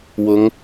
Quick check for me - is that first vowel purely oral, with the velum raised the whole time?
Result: yes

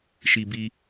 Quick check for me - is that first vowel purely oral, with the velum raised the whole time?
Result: yes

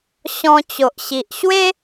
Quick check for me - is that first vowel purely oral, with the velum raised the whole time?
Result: no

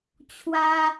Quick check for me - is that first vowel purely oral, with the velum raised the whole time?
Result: yes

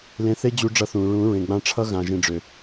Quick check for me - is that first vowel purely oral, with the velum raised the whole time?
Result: no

